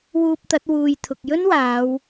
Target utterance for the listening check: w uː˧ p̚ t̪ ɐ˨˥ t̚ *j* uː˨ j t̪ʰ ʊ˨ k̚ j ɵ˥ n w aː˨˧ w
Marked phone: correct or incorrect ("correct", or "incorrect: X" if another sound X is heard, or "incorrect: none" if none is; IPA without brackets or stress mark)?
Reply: incorrect: w